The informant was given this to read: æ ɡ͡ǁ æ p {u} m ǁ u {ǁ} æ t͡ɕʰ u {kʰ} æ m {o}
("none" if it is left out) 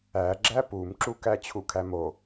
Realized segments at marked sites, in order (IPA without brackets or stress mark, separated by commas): u, k, kʰ, o